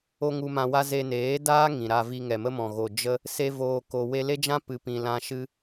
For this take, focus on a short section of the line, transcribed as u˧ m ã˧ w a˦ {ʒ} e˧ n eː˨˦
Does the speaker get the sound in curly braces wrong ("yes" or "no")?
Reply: yes